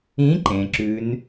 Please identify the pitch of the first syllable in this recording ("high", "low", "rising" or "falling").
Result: rising